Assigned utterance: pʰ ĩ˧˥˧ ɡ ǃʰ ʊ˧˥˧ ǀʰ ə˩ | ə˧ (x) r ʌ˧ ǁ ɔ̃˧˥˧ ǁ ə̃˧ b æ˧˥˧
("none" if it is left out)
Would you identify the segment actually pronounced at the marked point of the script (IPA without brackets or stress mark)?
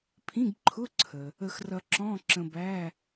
x